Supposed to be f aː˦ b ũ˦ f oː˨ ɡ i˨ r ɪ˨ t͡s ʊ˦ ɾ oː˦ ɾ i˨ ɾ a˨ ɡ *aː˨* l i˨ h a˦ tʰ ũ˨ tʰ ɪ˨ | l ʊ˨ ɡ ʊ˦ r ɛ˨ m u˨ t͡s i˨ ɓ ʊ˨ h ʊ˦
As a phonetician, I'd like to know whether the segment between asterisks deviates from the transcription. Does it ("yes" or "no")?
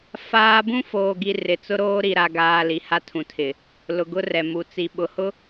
no